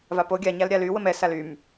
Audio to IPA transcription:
vapo ɡʲaɲal ɾʲaly wəmɛ salym

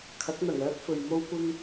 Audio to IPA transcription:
kʰɐ˨˥k̚n̪ɐ˨˩ŋœː˥k̚ fɵ˨ɥmo˥wkʷɪ˥ŋ

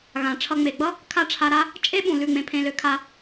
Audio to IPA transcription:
ɣã˨ʈ͡ʂʰʌ˧ ŋ͡me˨ɡ͡bʌ˦ | kʰa˦ʈ͡ʂʰa˧ɾa˦ | t͡ʃʼe˦ɓũ˨ lʉ˦˨ŋ͡mẽ˧pʰẽ˧lø˧ kʰa˧

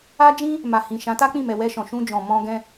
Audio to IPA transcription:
a˦d͡ʒĩ˦ | ma˨hĩ˨ ʃã˨˦ta˦k͡pĩ˦˨mɛ˨ wɛ˧ʃɔ̃˨ʃũ˧d͡ʒɔ̃˨ mɔ̃˧ɡɛ̃˧

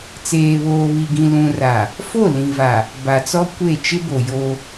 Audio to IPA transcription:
t͡seː˨βoː˨βi˨ɡĩ˨ lũ˨ra˨ | fo˦˨lĩ˨va˨ | ba˨t͡sɔ˦ kʷe˦˨ t͡ʃɪ˦bo˨ jo˦

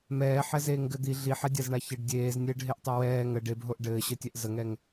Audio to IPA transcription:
mɛːħɛzeːŋɡɘ d̪i ɮiħɛdʲazɳa çɘɖ dʲeːznʲɘːɖɦeʔtˤɛ wɛː ŋə ɖebɦoʔ ɖɘːɕɘtʲɛʔ zəŋɛŋ

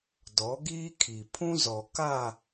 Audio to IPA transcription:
dɔ˨˦ɡiː˦kʰi˨ pʰũ˦zɔ˨ ka˦˨

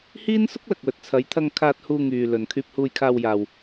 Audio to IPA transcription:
hiː˥nsʊ˥k̚lɐ˨k̚wɵ˨t̚ t͡sʰɐ˨˧j t̪ʰɐ˧ŋkʰaː˧t̚ huː˧ŋyː˨ lɵ˨n kʰyː˧p̚huː˧jkʰaː˧wjaː˨w

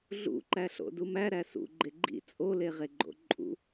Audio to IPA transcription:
ɮṵǃæ ɬo̰dumæ ɾæsṵ ɡ͡ǃeɡ͡ǃḭ t͡sʼole ʁeɡ͡ǃo̰ǃʼṵ

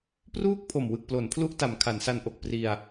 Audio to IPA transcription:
pruː˥˩k̚pʰo˨˩m wɯ˨˩k̚plo˩˦npʰlu˦˥ʔta˩˦m kʰa˩˦nsa˧nʔo˨˩k̚pri˧a̯

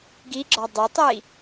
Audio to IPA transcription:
ɡiɡ͡ǁɒ dˤetˤi

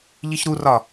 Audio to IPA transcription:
ʎiçɾurɒ

